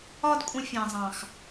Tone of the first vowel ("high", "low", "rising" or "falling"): high